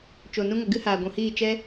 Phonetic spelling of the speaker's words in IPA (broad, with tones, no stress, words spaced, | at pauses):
t͡ʃo˨ nũ˧ŋə˨ ɡɨ˦ haː˨ ɡʷũ˨hiː˦˨ t͡ʃɛ˦